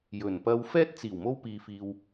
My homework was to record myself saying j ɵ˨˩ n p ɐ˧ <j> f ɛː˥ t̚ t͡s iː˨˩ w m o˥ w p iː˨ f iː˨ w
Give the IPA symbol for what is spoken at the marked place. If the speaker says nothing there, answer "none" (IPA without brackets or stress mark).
w